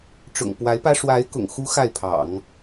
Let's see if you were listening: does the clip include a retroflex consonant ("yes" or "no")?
yes